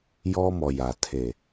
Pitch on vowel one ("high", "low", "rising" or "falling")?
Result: high